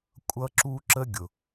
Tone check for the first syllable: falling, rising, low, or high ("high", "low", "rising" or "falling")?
high